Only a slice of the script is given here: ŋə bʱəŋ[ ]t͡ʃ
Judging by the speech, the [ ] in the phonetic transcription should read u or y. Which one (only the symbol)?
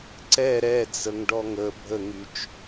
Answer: y